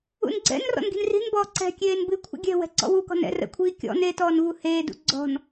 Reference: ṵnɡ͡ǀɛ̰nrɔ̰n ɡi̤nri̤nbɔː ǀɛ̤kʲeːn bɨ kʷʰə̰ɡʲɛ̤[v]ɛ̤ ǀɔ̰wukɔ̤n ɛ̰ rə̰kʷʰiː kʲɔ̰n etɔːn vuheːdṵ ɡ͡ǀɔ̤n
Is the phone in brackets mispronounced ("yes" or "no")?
yes